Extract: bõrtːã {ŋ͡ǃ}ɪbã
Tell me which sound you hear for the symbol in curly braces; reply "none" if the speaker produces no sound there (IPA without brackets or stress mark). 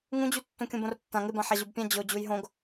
ŋ